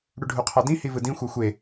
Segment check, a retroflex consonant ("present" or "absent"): present